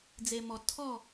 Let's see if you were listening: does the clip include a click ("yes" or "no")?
no